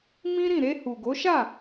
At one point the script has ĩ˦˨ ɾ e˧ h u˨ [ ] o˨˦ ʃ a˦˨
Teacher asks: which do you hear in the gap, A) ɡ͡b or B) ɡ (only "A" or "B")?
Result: B